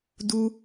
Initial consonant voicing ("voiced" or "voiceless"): voiced